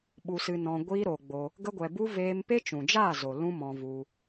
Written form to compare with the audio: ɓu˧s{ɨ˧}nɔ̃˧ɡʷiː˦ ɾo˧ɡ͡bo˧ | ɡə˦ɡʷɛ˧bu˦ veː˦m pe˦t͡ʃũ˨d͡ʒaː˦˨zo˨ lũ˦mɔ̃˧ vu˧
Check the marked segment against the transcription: correct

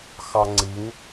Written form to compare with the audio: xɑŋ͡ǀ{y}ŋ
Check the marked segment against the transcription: incorrect: i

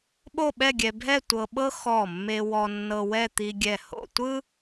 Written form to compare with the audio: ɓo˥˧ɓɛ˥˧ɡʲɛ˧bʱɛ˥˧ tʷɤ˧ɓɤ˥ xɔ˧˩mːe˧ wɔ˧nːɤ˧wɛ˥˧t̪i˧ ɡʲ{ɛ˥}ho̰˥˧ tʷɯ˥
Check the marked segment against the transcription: incorrect: ɛ˧˩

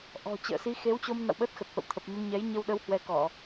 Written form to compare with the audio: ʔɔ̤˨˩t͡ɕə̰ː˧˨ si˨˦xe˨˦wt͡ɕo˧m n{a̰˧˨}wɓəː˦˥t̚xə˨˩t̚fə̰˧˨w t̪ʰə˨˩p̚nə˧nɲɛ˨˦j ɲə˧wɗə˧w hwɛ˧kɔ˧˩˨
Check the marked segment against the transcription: correct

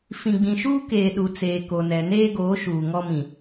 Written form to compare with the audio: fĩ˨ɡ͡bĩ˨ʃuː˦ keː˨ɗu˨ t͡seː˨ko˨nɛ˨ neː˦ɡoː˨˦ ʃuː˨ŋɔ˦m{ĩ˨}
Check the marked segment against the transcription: correct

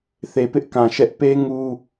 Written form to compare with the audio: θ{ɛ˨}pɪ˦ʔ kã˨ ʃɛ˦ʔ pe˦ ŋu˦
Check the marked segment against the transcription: incorrect: e˨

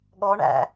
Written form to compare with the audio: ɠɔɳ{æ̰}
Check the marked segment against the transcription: correct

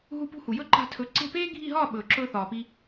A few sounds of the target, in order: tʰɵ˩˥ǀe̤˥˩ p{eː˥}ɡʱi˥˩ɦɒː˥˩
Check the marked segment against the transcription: correct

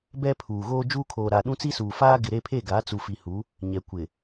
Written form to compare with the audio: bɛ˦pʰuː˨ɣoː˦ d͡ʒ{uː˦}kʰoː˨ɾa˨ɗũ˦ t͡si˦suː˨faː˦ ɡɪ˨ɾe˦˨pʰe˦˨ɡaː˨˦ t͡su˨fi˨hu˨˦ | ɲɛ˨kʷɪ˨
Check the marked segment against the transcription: correct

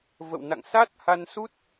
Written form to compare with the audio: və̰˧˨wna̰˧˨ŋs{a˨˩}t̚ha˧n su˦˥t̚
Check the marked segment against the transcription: incorrect: a˦˥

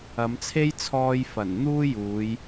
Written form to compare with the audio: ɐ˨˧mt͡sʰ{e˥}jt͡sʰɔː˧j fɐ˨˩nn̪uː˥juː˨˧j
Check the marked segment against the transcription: correct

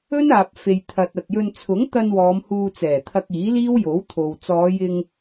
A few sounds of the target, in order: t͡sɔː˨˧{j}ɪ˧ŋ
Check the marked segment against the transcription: correct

